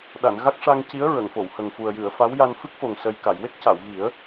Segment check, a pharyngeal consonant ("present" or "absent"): absent